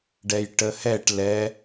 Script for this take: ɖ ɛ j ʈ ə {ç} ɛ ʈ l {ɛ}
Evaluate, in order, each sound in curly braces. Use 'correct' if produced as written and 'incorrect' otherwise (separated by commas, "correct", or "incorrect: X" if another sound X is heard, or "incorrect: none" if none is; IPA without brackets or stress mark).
incorrect: h, correct